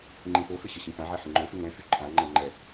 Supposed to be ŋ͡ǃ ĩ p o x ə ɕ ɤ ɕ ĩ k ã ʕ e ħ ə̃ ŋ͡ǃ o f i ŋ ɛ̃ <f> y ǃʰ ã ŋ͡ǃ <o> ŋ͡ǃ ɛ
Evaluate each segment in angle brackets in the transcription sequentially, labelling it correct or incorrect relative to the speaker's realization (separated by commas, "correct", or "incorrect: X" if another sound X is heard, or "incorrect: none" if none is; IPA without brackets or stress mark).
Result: correct, incorrect: ɤ